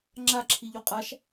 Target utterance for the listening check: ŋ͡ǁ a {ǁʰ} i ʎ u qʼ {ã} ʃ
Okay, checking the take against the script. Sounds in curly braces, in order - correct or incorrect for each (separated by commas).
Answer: correct, incorrect